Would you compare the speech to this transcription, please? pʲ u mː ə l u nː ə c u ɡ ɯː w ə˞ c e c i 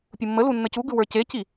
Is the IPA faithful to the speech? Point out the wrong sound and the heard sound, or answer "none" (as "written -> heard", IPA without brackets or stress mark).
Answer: ɯː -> ɯ